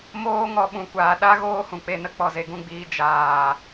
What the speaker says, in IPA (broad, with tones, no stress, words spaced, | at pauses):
moː˦ŋɔ˧ ɓũ˨kʷaː˨ ɗa˦ ɣoː˦hũ˨k͡pe˦˨nə˦ k͡pɔ˨ze˨ɡũ˧ɡ͡biː˧ d͡ʒaː˨